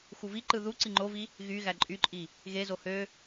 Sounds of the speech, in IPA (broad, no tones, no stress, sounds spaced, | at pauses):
x u v i ǃ ɯ ð u ǀ i ŋ͡ǃ o v i | ɣ y ɣ æ ǃʼ y ǃʼ i | ɣ e z o h ø